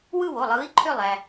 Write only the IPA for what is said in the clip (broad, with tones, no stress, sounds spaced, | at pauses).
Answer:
w ɯ˥˧ w o˩˧˩ lˠ ɯː˨˥ i̯ ǃʰ ø˥˧ lˠ æ˧